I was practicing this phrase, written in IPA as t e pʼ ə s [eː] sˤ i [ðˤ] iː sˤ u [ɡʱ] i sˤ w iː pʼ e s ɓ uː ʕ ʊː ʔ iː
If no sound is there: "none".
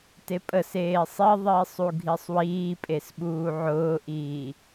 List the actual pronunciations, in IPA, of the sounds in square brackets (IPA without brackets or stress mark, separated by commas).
eː, ðˤ, ɡʱ